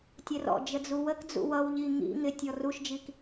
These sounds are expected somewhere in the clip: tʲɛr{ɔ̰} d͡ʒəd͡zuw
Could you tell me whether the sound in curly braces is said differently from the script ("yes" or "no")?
no